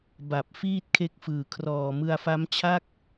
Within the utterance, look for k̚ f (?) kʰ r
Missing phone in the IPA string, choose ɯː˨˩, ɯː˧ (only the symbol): ɯː˨˩